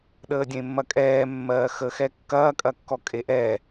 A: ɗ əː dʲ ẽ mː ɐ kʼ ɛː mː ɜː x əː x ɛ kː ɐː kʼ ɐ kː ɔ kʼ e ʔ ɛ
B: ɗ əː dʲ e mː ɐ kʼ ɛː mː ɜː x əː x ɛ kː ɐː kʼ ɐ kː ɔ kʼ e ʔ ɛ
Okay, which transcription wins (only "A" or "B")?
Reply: A